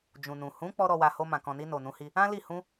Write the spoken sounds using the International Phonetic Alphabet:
d͡ʒ ũ˨ n ũ˨ h ũ˨˦ k͡p ɔ˦ ɾ ɔ˧ w a˧ h o˧ m ã˨ k ɔ̃˨ n i˧ n o˨ n ũ˨˦ h i˧ | ã˦ l i˦˨ h ũ˧

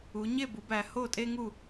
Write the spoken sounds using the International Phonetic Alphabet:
u˩˧ ɲ e˥˨ b u˩˧ b æ˩˧ h o˥˨ tʼ e˥ ŋ u˥˨

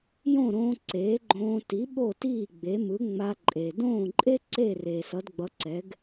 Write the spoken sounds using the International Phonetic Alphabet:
j õ˥˩ ɾ õː˧ ǀ eː˩˥ ɡ͡ǃ õː˧ t i˩˥ ɓ o˥˩ t iː˥˩ ɡ͡b e˩˥ m ɯ˩˥ ŋ͡m a˧ ǃʼ e˩ d õː˥˩ ǃʼ e˥ ǀ e˥˩ r eː˩ s ʌ˩˥ d ɡ͡b ʌ˩˥ ǀ ɛ˩˥ ɡ

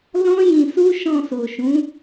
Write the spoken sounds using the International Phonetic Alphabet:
l ɔ̃˦ j ĩ˧ s u˦ ʃ ɔ̃˧ s o˨ ʃ ũ˨˦

